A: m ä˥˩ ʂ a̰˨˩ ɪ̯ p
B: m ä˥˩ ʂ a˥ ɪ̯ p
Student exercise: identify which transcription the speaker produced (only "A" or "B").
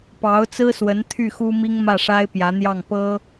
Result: B